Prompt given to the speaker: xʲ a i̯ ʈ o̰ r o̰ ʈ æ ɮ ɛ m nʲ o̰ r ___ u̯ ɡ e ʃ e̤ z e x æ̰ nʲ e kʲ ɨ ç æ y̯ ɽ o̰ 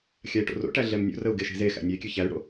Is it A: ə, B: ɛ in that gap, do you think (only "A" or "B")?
A